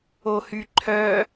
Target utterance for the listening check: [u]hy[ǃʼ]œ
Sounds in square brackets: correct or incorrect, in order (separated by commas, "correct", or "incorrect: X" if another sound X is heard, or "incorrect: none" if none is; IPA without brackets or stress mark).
incorrect: o, incorrect: ǃʰ